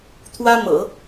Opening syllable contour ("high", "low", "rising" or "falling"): high